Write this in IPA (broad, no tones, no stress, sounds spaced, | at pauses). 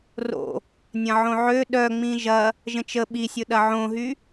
r o̰ | nʲ ɐ̃ ʕ õ ʕ ø ɗ œ ŋ͡m ĩ ʒ ɐ | ʒ ə̃ t͡ʃ ə ɓ i sʲ ʊ ɗ ɐ ʕ õ ɦ y